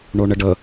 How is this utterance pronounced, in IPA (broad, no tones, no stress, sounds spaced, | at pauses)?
ɳ o ɳ ə ɖ ə